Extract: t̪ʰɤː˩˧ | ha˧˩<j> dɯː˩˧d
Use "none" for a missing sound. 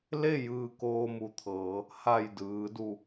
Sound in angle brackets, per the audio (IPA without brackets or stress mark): j